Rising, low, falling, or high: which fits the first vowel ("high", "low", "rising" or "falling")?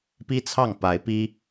high